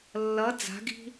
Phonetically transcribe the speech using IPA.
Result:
lːʌ d͡za̤ɡi̤

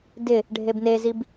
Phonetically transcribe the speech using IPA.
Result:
dɪ | ɖʱebnezib

